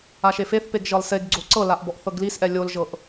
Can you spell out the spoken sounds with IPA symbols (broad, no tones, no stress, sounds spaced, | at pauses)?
a ʃ e f e θ p e ɡ ʒ ɤ lˠ s e ɡ ɡ͡ǀ o ǀ ɤ l a ʔ b ɔ ʔ θ ɤ ɡ l i s ʔ ɛ lʲ o l ʒ ɤ ʔ